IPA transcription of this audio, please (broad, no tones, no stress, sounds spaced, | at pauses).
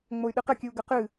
ŋ͡m o y̯ ɗ ɨ q ɘ kʲ ɨ u̯ ɡ ɘ q ɨ